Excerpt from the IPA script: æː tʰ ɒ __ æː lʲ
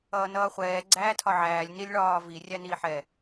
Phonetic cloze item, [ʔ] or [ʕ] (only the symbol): ʕ